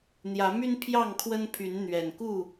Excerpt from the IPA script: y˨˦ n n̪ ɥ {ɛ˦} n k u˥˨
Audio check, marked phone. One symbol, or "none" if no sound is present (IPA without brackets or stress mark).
ɛ˨˩